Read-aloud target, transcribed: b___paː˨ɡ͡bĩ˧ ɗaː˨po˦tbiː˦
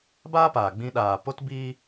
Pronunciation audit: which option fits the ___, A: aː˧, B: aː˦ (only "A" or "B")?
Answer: B